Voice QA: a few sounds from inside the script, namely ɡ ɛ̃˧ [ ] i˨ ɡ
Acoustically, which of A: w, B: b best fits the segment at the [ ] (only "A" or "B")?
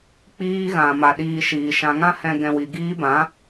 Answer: A